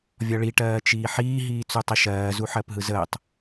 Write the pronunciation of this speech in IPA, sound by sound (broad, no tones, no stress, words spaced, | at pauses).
vʲɒɭi ʈɜːt͡ʃiːħiː ɦiːt͡sutˤeʃɜː zuħɜpɦɯzəːtˤ